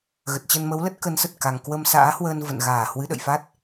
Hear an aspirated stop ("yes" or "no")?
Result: no